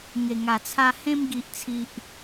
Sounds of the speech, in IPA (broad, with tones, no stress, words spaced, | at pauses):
ŋe˨˩ŋa˨˩t͡sʰa˧ hẽ˧mɡi˨ʔt͡sʰi˨ʔ